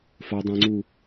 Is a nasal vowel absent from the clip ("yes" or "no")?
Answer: no